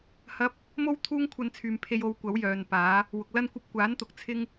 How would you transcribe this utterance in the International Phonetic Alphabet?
h ɐ˥ p̚ | m o˥ w t̪ʰ uː˥ ŋ kʷʰ ɐ˧ n t͡sʰ yː˨ m pʰ e˧ j o˨˧ w kʷ ɐ˨˥ w j œː˨ n p aː˨˥ | w ʊ˨ k̚ l ɐ˥ n kʷ ɐ˥ p̚ kʷ aː˨˥ n t̪ ʊ˨˥ k̚ t͡sʰ ɪ˥ ŋ

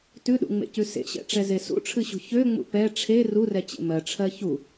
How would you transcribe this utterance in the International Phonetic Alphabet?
t ʉ ɗ ṵ ŋ͡m ḛ c ʉ s ḛ ɕ ɛ̰ ʈ͡ʂ ɛ z e s ṵ ʈ͡ʂʰ ɨ ɕ ṳ ç ø ŋ͡m ṵ p ɛ ʈ͡ʂʰ e r u r ɛ t͡ɕ ḛ m ɜ ʈ͡ʂʰ ɜ ç u

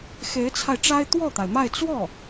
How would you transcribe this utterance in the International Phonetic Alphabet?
x e˧˥ ɪ̯ t͡sʰ a˧ ɪ̯ ʈ͡ʂ a˥ ɪ̯ t̪ w ɔ˥˩ t̪ a˩ ɪ̯ m a˥˧ ɪ̯ t͡s w ɔ˥˩

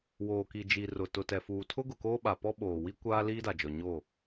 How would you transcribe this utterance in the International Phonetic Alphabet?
w oː˨ k i˨ d͡ʒ i˨ r ʊ˨ t ʊ˨ t ɛ˨ f uː˨ tʰ ʊ˦ ɡ ʊ˨ k oː˦ ɓ a˨ p ɔ˦ ɓ oː˨ w i˦ kʷ aː˦ l iː˦ d a˨ d͡ʒ ɔ˨ ɲ o˦˨

